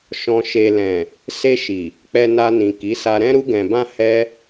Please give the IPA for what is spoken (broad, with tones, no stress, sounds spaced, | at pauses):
ʃ ɔ̃˨ ʃ e˨ l ɛ̃˨ | s e˧ ʃ i˨ | k͡p ɛ˧ n a˧ n ĩ˨ k i˨˦ s a˧ ɾ ɛ̃˦ ɾ u˧ ɡ ɛ̃˨ b ã˧ h ɛ˦